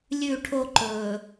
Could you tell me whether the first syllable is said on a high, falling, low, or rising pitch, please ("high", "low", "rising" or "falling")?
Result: falling